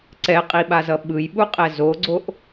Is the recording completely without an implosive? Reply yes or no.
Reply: no